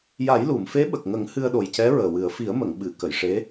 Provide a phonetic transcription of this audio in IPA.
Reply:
ja˨˩˦jlu˨˩˨mfe˧˥ ɓə˨˩k̚ŋə˨˩˦ŋ hɨ˧ə̯ɗo˨˩jcɛ˧˥ ɹəː˨˩wɨ˨˩˦ə̯ fi˨˩˦ə̯mə˨˩˨ŋɓɨ˨˩˨ kə˨˩˨jʂe˧˥

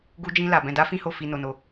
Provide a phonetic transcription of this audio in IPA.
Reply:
ɡu˦d͡ʒĩ˦la˧ bɛ̃˧da˦ fĩ˦ho˦˨ fi˧no˧no˧

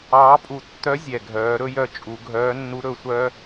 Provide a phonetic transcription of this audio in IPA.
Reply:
ɑː˧˥pʼu˧ tːœ˧˥ zʲɛ˩ɡʱœː˩˧ ɾɵ˥jœ˧ t͡ʃʼu˩˧ ɡʱœː˧˥nːu˧˥ ɾɵ˩˧sʷœ˥

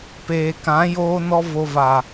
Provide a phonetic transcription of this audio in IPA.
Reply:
peː˨kã˨˦ joː˦nɔ˦ vo˧va˨

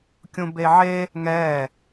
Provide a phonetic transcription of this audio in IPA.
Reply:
kʲũbeʕe | ŋɛ

